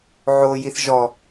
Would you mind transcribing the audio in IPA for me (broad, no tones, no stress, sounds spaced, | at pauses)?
ʕ o j i θ ʒ ɔ